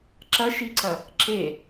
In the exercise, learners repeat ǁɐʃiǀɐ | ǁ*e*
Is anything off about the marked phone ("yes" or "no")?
no